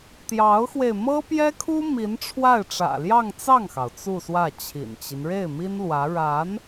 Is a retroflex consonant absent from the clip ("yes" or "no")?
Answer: no